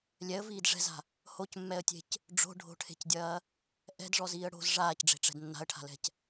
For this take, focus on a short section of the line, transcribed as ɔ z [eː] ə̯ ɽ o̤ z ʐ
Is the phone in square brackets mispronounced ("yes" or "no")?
yes